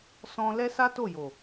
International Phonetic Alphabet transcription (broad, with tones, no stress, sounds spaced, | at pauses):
s ɔ̃˧ l ɛ˦ s a˦ t o˦˨ j o˨